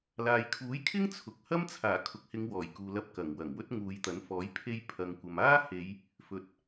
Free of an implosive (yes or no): yes